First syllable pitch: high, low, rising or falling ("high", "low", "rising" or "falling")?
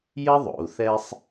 high